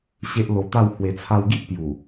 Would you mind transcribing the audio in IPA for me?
ɕ e˦ ʔ l o˧ t̪ a˥˧ w h w e˨˩ t͡sʰ a˧ w ɡ i˦ ʔ p j u˨˩

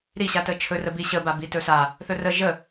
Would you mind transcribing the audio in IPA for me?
ɾ i ɕ a t ə t͡ʃʰ ɵ r ə b i ɕ ə b a b i t ɵ s a | θ ɵ r ə ʒ ə

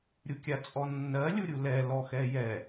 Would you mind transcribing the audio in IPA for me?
ɾʲ u kʲ a t͡sʼ ɔ nː ɜ lʲ u ɾʲ u l ɛ l ɔ x ɛ j ɛ

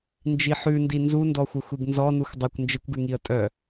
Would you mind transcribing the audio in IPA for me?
n d͡ʒ i ħ ʉ n d i n z u n d ɔ xʷ ɘ xʷ i ɡ n z ɔ n u x dˤ ɘ kʷ n d͡ʒ ɪ kʷ ɡ ʉ ŋ i ə̯ tʼ œ

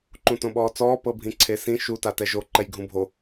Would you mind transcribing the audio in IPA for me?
ǃ ũ t õ ɓ ɔː t͡s ɔː p ɤ bʱ ĩ ǀʰ e s ĩ ʃ u t a t ɛ ʒ o ǃ ɛ j ɡʱ ũ bʱ o

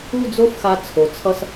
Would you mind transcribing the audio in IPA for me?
u˥˧ d͡z o˥ f x a˧ t͡sʰ o˩˧ t͡sʰ ʌ˧ s

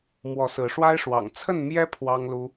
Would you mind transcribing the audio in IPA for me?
m w ɔ˨˦ s ɹ̩˨˦ ʂ w a˦ ɪ̯ ʂ w ɑ̰˨˩ ŋ t͡sʰ ə˥˨ n m j ɛ˦ pʰ w ɑ˦ ŋ l u˦

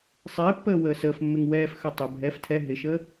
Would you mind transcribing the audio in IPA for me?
sˤ ɪː pː əː w əː s əː f mː ɪ ŋ w ɛː f x œ tˤ ə bʱ ɛ f tʰ ɛ ɦ ɪ ʃ əː

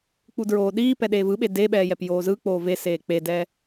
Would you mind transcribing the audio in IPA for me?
k͡p u d ɹ oː ɗ iː p ɛ ɗ eː v ɯ ɓ e d e ɓ ɛː j ɛ p j oː z ɯ k͡p oː v e s eː k͡p e d ɛ

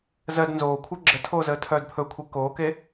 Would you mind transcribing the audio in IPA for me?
z ɜ d n z oː kʷʰ ɜ ɡ͡ǁ ə tʰ oː z əː tʰ œː d pʰ ɵ kʷʰ e k oː k e

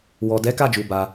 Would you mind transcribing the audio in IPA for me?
w ɔ˨ d ɛ˨˦ k a˦˨ d͡ʒ u˨ b a˧

